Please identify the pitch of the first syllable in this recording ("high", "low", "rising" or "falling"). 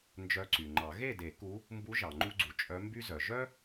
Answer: rising